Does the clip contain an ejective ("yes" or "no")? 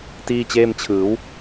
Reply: no